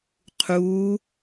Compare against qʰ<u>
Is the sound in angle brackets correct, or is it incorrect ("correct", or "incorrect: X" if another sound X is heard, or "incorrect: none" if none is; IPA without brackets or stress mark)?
correct